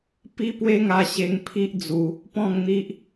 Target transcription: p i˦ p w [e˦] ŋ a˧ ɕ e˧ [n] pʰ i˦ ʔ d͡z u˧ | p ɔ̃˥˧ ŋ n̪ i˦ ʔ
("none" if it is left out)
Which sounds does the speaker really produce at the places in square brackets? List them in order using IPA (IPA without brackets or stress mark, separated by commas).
e˦, ŋ